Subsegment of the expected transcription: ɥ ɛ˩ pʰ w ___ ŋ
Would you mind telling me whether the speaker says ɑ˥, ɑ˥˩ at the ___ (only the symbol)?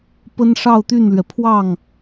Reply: ɑ˥˩